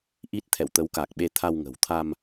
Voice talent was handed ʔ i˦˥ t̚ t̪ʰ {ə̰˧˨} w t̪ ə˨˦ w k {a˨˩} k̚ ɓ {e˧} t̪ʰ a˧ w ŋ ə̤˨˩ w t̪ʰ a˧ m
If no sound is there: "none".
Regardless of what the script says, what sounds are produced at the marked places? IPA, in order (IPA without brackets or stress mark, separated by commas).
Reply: ɛ̰˧˨, a˨˩, e˧